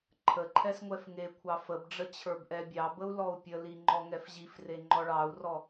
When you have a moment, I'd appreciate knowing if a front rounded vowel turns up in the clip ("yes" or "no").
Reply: no